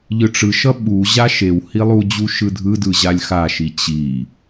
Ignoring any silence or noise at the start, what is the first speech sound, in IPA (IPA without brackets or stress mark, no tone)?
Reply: ʎ